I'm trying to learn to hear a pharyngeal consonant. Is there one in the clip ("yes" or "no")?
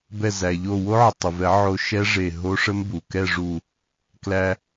yes